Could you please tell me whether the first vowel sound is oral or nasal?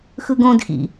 oral